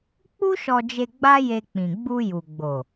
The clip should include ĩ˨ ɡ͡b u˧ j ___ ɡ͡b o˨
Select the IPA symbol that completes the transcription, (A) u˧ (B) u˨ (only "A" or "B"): B